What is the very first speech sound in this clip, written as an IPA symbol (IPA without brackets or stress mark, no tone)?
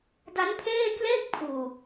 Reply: d